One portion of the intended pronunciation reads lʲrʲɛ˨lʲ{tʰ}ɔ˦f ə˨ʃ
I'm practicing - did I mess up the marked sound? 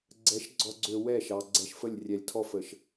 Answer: no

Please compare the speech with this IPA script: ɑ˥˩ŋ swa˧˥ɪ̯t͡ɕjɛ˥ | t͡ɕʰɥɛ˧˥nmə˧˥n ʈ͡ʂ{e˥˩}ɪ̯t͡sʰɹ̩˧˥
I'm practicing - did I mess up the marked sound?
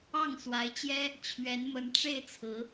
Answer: no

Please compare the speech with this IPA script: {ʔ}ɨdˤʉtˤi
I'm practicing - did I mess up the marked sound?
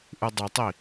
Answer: no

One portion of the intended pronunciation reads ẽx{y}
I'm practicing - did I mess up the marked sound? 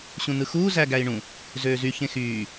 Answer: yes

